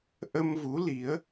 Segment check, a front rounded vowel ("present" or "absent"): absent